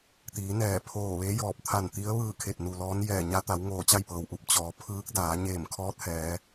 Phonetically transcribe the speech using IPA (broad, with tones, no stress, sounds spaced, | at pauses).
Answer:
t̪ iː˩˧ n ɛː˧˩ pʰ oː˧˩ ʋ e˧˥ j ɔː˧˩ p̚ t̪ʰ a˧˩ n t̪ i˧˥ ə̯ ʋ ɯː˥˨ kʰ e˧˩ t̚ n u˩ l ɔː˧˥ n j ɛː˧˩ ɲ a˧˥ t̪ a˩˧ w ŋ oː˧˩ t͡ɕ a˥˨ j p ɤː˩ w ʔ u˧˩ p̚ t͡ɕ ɔː˩˧ pʰ ɯː˧˥ k̚ d aː˩˧ ɲ eː˧˩ m kʰ ɔː˧˥ t̚ h ɛː˩˧